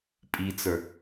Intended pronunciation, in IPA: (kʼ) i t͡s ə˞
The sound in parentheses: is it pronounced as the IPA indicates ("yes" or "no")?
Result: no